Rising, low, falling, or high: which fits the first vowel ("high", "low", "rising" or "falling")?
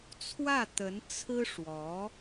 falling